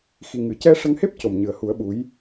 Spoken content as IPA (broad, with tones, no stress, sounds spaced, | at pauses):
x i˨˩ ŋ ɨ˨˩˨ c ɛ˧ ʂ ə˧ ŋ h e˦˥ p̚ c o˨˩ m ɲ ɨ˨˩ ə̯ h u˨˩˦ ə̯ ɓ u˧˥ j